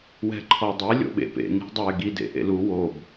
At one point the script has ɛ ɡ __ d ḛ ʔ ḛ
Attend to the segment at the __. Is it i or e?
i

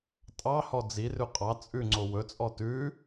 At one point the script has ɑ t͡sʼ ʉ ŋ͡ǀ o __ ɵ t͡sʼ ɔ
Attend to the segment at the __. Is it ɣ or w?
w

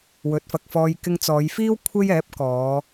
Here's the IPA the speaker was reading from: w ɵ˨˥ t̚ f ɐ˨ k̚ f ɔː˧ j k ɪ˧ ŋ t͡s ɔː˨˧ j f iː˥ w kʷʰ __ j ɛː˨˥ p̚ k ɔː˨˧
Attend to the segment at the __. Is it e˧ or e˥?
e˥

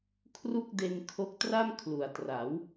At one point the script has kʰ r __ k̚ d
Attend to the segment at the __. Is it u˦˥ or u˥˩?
u˥˩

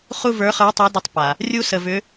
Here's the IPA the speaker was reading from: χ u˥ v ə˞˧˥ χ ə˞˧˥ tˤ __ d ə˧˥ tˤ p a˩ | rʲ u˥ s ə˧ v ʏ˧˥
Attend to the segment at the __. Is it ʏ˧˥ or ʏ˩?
ʏ˧˥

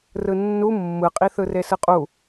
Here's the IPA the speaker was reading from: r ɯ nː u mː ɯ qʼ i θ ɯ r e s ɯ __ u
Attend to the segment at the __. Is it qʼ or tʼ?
qʼ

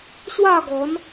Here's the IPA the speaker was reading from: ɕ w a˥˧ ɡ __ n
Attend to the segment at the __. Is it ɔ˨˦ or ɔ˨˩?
ɔ˨˦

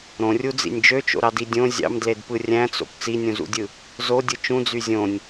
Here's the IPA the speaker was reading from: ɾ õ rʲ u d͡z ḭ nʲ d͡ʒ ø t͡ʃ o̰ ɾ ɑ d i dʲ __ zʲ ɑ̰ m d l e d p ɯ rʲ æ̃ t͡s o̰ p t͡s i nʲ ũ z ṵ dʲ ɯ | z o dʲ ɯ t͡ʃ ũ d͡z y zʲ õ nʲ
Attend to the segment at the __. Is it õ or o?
õ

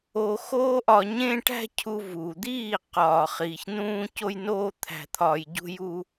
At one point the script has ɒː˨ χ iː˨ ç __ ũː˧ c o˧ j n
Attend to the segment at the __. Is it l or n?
n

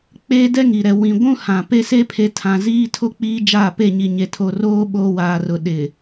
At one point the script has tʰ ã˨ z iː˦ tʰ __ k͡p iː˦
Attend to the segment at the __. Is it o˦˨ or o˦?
o˦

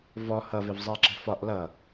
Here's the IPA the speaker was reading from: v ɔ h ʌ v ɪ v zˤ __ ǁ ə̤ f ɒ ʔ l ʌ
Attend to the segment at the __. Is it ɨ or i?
i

